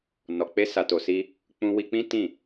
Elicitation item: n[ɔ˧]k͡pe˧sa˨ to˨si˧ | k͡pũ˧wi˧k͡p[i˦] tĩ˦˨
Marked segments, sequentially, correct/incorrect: incorrect: ɔ˨, incorrect: ĩ˦

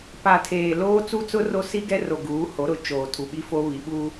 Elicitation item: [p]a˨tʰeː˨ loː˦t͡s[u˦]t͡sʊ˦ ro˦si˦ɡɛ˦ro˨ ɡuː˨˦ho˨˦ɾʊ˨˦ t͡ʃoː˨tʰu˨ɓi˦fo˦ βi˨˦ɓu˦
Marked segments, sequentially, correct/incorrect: correct, correct

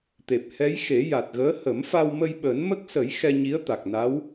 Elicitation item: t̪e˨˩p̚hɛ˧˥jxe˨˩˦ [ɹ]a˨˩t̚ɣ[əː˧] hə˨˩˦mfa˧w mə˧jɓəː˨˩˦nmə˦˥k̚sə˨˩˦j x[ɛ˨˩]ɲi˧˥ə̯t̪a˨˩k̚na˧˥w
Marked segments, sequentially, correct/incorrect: incorrect: j, incorrect: əː˧˥, incorrect: ɛ˧

